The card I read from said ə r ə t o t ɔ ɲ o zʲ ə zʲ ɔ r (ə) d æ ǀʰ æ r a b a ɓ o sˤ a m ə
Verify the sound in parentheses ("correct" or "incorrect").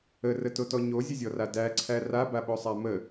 incorrect